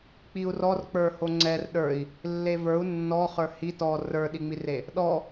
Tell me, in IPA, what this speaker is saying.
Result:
k͡p i u̯ r ɔ r k͡p ə˞ h o ŋ͡ǀ ɛ r ɗ ə˞ i̯ | lː e v ə˞ u̯ nː ɔ χ ə˞ h i t ɔ r ə˞ ɗ i ŋ͡m i r e | ɗ ɔ

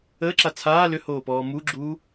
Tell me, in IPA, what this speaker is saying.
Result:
əː ǁ a t͡sʰ aː l ʏ h oː p ɔː m u ɡ͡ǁ uː

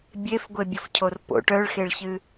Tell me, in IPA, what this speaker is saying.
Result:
bʲ e f ɡʷ e bʲ ʌ f cʰ o r p o̰ ʈ œ ɭ x e ɭ ç ɨ

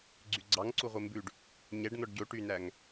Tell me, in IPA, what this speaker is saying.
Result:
ɡ͡ǀ y ɡ͡ǀ ɑ ŋ ǀ u ʁʷ e m b ʉ ɖ | ɲ ɛ ɖ n̪ ɔ ɖ ɟ o ʈ y n æ ŋ

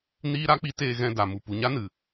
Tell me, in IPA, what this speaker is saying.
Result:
n iː˦ ɾ a˦ k͡p i˦ t eː˧ ɣ ɛ̃˧ d a˨ m u˨ p u˨ ɲ a˦ n ɨ˨

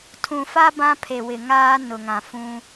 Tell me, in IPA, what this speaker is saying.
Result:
tʰ ũ˨ f a˦ b ã˦ pʰ e˨ w ɪ˨ ŋ aː˦ n ʊ˨ ŋ ã˨ f ũ˦

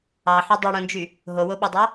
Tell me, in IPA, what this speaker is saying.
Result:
ɑ ħ ø dˤ i ɽ õ n d͡ʒ y | ɦ o w o ɓ ɑ dˤ ɑ

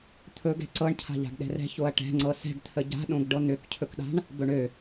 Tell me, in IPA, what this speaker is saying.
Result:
t̪ʰ ɵ ɡ ɛ̤ ǀ ɤ ɳ cʰ a̤ ʎ a̤ ɡ ɗ ɛ̤ r ɛ̤ ç o ɐ̯ ʈ ɛ̤ ŋ͡ǀ ɤ s ɛ̤ ɡ t̪ʰ ə ɟ a̤ ɗ õ ɡ ɖ ɤ n̪ ø k cʰ ɵ k ɗ a̤ ɳ | b ɵ ɳ ø

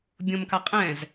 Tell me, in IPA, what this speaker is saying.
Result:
bʲ õ m k a qʼ ɛ̃ z

